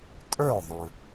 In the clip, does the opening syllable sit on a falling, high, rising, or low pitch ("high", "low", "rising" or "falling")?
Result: falling